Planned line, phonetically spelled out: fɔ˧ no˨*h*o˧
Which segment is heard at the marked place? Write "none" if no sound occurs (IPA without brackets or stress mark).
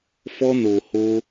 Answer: h